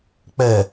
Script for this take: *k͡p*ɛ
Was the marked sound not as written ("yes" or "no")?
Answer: no